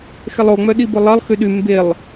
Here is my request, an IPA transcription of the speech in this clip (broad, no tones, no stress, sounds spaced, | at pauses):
x ɛ lˠ o ŋ͡m œ ɗ i b ʊ lˠ ɜ lˠ x y ɗ y m b e lˠ